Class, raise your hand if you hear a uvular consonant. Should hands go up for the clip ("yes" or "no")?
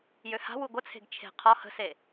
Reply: yes